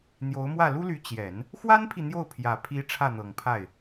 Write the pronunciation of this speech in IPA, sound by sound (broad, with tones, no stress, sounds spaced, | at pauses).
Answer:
n̪ j o˧˥ ʊ̯ m w ä˥˩ l u˥ l y˧˥ t͡ɕ j ɛ˨˩˦ n | x w a˥ n pʰ i˨ n̪ j o˥˩ ʊ̯ pʰ j ä˨˩ pʰ i˧˥ ʈ͡ʂʰ ä˥˩ n̪ ɤ˨˩ ŋ pʰ a˥˩ ɪ̯